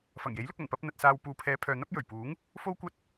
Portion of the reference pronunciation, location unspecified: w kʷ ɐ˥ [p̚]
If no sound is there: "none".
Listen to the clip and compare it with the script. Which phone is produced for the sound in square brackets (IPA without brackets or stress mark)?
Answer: t̚